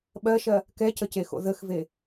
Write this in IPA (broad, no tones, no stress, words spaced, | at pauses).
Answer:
ɓɜʃɜ | kɛcəcexo̰ ðəxve